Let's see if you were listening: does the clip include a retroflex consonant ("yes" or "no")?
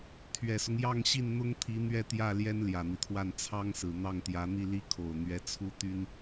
no